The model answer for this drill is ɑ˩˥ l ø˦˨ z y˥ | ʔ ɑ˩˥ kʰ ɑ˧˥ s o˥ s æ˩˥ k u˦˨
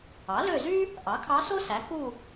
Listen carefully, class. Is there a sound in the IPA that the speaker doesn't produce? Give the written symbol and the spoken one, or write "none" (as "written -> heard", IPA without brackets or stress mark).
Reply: none